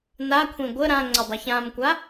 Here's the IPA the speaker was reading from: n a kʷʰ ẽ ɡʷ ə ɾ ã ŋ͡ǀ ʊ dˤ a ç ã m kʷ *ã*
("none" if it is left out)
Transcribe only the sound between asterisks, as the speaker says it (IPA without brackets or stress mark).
a